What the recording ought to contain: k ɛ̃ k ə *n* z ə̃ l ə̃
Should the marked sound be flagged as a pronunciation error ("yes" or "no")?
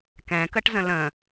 yes